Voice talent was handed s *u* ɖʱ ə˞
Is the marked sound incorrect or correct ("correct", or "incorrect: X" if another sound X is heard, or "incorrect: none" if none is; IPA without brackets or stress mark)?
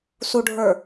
correct